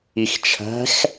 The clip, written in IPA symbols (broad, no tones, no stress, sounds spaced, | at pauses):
i x t͡ʃʰ æ̤ x